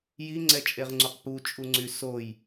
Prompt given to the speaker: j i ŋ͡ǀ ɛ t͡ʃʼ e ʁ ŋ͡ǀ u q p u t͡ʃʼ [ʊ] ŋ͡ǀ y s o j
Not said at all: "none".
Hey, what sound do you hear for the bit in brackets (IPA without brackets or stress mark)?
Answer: u